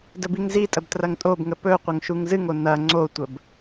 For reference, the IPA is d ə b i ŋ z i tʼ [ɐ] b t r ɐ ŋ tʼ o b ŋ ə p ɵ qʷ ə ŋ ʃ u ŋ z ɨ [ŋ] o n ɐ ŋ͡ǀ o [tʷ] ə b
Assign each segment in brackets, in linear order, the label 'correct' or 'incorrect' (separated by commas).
incorrect, correct, correct